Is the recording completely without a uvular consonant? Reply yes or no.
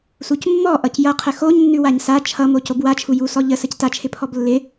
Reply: no